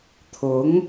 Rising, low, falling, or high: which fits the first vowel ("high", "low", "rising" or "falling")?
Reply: rising